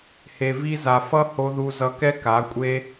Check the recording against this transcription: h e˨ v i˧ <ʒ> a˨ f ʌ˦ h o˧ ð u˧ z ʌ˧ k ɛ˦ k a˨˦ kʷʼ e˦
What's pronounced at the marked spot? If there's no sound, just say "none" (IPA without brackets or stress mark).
z